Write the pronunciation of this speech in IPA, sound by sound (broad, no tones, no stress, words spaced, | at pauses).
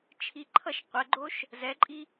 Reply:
t͡ʃʰiǃʰʌʃ qʷɛɡ͡ǃoʃ | zɛǃʼi